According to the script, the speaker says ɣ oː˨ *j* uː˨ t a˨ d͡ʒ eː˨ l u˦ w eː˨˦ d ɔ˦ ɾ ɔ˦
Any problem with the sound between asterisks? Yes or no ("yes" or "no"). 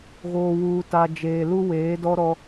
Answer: yes